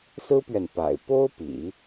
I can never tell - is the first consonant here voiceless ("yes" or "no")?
yes